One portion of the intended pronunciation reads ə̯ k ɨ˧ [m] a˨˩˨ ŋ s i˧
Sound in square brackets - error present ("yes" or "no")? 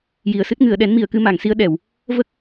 no